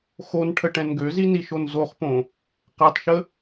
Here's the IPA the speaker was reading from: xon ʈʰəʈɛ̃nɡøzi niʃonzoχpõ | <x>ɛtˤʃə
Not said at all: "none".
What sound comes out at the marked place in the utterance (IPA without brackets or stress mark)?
q